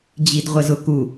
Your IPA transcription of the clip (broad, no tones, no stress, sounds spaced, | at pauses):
d͡ʑ i d ʁʷ ə z ʊ k u